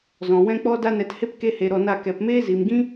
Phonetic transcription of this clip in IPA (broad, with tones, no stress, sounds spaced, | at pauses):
z ɔ̃˨ w ɛ̃˦ k͡p ɔ˦ d a˦ n ɛ˧ t h e˦ p k e˦ h e˧ ɾ ɔ˧ n a˦˨ k ɛ˨ p m eː˦ z i˨ m ɡ ĩ˦